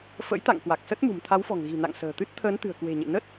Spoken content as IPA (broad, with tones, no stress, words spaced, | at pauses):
fə̰˧˥jt̪a̰˧˨ŋ kwa˨˩k̚sə˦˥t̚mṳ˨˩m t̪ʰa˨˦wfɔ̤˨˩ŋɣi̤˨˩na̰˧˨ŋ sə̤ː˨˩t̪ɨ˦˥t̚ t̪ʰəː˨˦nt̪ɨ̤˨˩ə̯kwe̤˨˩ɲḛ˧˨ nə˦˥t̚